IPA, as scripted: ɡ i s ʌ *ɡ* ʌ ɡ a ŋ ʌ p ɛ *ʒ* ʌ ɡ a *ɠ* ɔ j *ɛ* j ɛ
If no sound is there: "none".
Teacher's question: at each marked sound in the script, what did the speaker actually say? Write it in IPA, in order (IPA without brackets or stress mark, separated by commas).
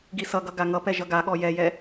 ɡ, ʒ, ɠ, ɛ